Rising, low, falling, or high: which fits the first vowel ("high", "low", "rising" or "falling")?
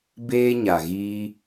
high